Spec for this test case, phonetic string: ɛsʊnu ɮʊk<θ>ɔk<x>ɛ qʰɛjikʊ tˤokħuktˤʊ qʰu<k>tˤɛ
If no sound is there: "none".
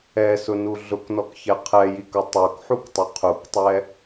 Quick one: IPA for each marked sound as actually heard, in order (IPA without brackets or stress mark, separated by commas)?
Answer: n, ç, k